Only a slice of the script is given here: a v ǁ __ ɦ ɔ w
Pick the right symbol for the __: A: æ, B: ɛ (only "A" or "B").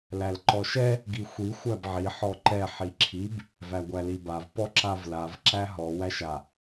A